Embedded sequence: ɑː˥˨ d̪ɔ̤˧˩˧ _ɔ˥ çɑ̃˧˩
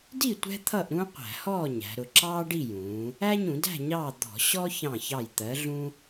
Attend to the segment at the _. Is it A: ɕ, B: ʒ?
A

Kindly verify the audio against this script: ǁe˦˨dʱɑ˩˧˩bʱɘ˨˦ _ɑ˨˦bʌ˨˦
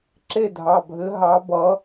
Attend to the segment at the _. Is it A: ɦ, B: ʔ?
A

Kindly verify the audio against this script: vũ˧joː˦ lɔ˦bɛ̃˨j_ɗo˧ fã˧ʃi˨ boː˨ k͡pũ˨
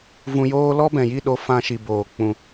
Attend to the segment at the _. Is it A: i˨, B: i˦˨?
B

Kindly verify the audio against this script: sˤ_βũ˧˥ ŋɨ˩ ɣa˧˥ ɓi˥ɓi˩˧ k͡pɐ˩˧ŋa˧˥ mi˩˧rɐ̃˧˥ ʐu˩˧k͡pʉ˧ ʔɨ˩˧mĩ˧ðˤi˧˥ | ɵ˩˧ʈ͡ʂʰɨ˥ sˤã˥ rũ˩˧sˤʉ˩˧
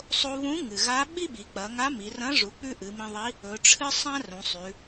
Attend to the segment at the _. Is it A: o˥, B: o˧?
B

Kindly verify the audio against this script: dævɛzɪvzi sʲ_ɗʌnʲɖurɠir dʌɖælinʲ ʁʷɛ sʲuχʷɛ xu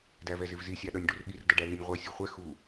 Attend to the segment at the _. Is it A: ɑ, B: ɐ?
A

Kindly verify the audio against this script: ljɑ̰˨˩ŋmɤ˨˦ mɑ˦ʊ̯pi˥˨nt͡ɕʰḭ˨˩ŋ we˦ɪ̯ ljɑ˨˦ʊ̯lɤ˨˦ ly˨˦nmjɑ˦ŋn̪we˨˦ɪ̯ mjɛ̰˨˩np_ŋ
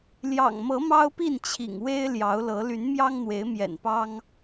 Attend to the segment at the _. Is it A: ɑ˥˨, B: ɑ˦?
B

